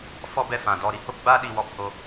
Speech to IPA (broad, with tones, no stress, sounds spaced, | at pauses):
f ɔ˦ b ɛ˧ f ã˨ d ɔ˦˨ ɾ i˧ h o˦ p ɡ͡b aː˦ ɗ i˧ w ɔ˧ p h o˦˨